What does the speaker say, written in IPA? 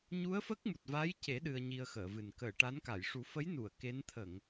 ɲ u˧˥ ə̯ f ə˦˥ k̚ m u˨˩ t̚ v a˧˥ j c e˨˩˦ ɗ ɨ˧ ə̯ ɲ i˧ ə̯ x əː˨˩˨ v ɨ˨˩ n k əː˨˩˨ ʈ a˧˥ n k a˨˩˨ j ʂ u˨˩˦ f ə˧˥ j n u˨˩˨ ə̯ k e˧˥ n t̪ʰ ə˨˩˨ ŋ

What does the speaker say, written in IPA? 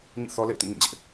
ɲ ḭ˦˨ θ ɔ˦ l ḛ˦˨ ɪ̯ t ĩ˦˨ ŋ ĩ˦˨ d͡ʑ ɪ˦ ʔ

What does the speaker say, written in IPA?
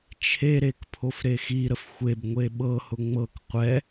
t͡ʃʰ e ɾ e k pʰ o f ɾ e x i ɾ ə f xʷ e b ŋʷ e ɓ ɤ h ʊ ŋ͡m ɤ k qʷ ɛ

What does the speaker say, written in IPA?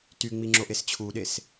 t y ŋ͡m i ŋ͡ǁ o ʔ e s t͡ɕʰ u ɗ e s

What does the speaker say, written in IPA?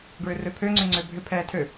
ɡ ɹ ʏ r ø pʰ ø ŋ͡ǀ ʏ ŋ͡ǀ ø bʱ ʏ pʰ ɛː tʰ ø

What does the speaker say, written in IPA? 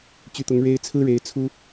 t͡ɕ y˧˥ t̪ ʊ˧˥ ŋ ɻ e˥ ɪ̯ t͡sʰ ɹ̩˥ ɻ e˧˥ ɪ̯ t͡sʰ u˥

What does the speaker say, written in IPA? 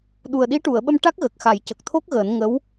ɗ u˨˩ ə̯ ɗ i˧˥ ʈ u˨˩˨ ə̯ ɓ ə˧ m ʈ a˦˥ k̚ ɣ ə˨˩ k̚ x a˨˩˦ j c ə˨˩ k̚ t̪ʰ o˦˥ k̚ ɣ əː˨˩˦ n ŋ ə˧˥ w

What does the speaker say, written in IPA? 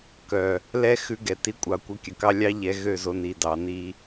k œ˨ | l ɛ˦ x ʉ˧ ɡ ɛ˨ t i˨˦ kʷʼ ɑ˨ kʷ œ˧ kʲ ɵ˨ k ɑ˦ lʲ ɑ˦ ʎ ɛ˨˦ ɣ ø˦˨ z o˧ n i˨ d ɑ˨˦ n i˧

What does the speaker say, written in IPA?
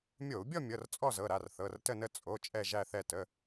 mʲ o˧˩˧ u̯ bʲ ɔ˥˧ mʲ ɤ˩˧˩ r t͡sʼ ɔ˥˧ z ɤ˩˧˩ ɾ a˩˧˩ r θ ɤ˩˧˩ r t ə˥˧ n ə˥˧ t͡sʼ o˩˧˩ t͡ʃʼ ɛ˥˧ ʒ æ˥˧ θ ɛ˥˧ t ə˩˧˩

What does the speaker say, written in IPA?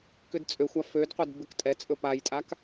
k ʏ d t͡sʼ ø xʷ a f ø d qʷ ɛ d b ʏ k tʼ ɛ t͡sʼ ɵ p a j tʼ a k

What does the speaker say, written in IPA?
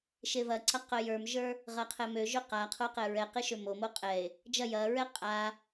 ʃ e v ɐ ǀ ɐ q œ j ə˞ m ʒ ə˞ | ʁ ɐ qʰ ɛ m ø ʒ ø q a qʰ o q ɛ ɹ ɛ q e ʃ ø m o m o qʼ ɛ e̯ | d͡ʒ ɐ j ɐ ɹ ɛ qʼ a

